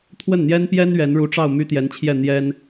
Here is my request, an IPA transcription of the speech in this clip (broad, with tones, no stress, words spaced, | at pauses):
t̪ʰwə˥˩nn̪jɛ˥npjɛ˥n ɥɛ˧˥nɻu˧˥ʈ͡ʂɑ˥˩ʊ̯ my˥t̪jɛ˧˥nt͡ɕʰjɛ˥˩ n̪jɛ˥n